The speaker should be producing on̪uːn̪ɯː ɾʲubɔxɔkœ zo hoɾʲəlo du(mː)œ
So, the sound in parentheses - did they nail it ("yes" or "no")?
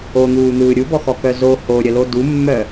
yes